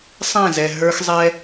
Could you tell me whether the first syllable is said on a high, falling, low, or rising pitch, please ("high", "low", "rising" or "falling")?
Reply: falling